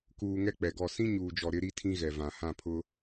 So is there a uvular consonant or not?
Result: no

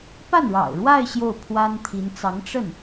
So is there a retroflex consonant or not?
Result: yes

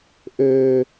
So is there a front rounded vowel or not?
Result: yes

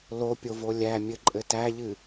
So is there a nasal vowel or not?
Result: no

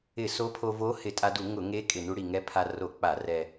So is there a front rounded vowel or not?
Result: no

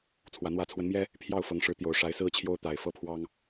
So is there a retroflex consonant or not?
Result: yes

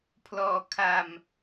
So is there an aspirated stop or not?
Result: yes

